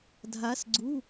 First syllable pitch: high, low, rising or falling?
rising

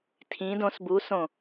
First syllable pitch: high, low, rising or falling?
rising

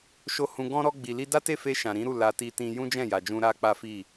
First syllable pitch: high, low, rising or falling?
high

